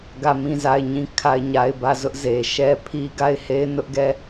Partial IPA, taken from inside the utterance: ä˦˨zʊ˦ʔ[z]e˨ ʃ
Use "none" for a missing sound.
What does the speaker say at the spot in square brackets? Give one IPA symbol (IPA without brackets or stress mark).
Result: z